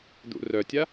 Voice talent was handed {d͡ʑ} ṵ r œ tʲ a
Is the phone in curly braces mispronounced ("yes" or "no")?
yes